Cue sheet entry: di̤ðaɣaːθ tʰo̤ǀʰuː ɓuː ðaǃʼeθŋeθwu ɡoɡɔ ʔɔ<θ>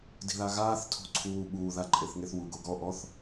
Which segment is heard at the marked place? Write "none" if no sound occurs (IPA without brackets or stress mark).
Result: θ